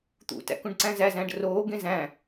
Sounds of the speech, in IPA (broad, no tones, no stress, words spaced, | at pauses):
t̪ṵtæ̰ kũɖǀæ̃zæzæ̃ɖ roːɡẽ zæ̃